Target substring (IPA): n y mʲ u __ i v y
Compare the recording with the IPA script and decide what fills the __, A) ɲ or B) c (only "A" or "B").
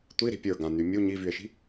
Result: A